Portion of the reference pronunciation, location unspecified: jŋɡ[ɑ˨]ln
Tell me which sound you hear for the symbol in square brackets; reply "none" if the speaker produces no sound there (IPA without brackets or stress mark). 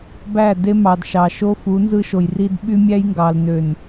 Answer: ɑ˨